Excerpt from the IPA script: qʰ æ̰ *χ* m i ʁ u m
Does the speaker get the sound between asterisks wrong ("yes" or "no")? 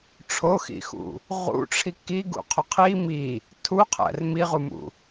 yes